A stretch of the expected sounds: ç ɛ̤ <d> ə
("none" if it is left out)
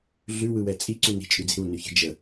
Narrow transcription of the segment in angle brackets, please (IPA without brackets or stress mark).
d͡ʒ